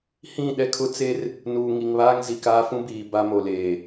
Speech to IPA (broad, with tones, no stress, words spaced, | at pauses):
hĩ˦˨ɗɛ˦kʰʊ˦ t͡se˦r | nuː˨ ŋi˨ŋβaː˦ŋzi˨ kaː˦ fũ˦biː˨ ba˦mo˨leː˨